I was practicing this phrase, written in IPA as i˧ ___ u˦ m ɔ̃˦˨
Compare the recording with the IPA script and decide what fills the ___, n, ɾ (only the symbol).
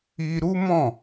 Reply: ɾ